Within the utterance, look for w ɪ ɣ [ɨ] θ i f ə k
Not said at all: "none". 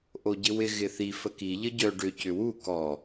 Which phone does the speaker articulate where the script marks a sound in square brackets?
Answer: ɪ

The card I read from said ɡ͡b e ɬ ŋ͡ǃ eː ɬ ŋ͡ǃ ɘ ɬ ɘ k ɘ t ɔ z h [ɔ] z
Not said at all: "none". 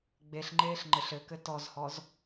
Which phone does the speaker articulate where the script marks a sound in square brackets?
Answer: ɔ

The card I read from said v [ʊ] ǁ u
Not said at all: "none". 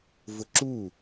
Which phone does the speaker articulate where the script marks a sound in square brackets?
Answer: ʊ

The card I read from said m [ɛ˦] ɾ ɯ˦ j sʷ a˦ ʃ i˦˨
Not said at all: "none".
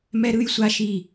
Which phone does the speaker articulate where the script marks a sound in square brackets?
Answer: ɛ˦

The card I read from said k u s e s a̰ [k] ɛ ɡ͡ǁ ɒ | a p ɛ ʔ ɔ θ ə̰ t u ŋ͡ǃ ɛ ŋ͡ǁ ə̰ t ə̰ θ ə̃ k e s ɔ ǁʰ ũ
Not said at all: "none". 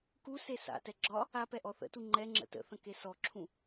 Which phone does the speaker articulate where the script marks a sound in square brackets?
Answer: t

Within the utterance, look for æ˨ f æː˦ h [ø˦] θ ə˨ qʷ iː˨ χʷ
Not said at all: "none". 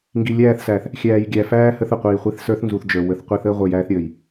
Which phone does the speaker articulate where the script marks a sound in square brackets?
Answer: ə˦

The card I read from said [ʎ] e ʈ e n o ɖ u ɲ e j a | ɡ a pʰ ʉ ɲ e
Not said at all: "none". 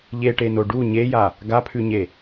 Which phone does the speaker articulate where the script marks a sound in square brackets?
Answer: ʎ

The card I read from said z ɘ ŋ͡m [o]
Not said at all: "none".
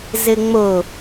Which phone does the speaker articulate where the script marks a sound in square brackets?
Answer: o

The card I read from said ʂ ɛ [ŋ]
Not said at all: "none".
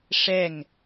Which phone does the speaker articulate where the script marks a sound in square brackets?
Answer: ŋ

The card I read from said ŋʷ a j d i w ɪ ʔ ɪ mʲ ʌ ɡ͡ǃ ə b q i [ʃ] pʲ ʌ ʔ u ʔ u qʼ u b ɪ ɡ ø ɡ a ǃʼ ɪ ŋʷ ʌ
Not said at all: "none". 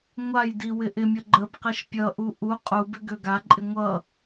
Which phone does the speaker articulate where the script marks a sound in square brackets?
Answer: ʃ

